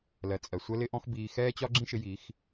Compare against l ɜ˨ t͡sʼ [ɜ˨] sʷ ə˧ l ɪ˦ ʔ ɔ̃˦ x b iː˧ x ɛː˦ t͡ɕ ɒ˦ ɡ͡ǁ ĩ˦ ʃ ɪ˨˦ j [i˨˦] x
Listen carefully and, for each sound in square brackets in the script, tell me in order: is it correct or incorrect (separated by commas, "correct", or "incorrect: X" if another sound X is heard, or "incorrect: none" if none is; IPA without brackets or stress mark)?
correct, correct